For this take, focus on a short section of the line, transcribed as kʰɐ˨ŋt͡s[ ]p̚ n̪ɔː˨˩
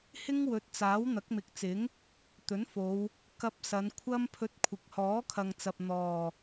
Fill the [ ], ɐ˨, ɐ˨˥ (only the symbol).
ɐ˨